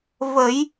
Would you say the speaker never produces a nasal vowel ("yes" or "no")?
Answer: yes